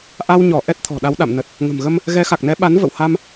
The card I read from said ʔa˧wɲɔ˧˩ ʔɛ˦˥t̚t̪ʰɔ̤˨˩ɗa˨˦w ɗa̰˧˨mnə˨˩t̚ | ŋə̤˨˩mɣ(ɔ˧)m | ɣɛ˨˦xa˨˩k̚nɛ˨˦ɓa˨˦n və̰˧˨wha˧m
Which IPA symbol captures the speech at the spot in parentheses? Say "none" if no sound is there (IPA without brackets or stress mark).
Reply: ə˧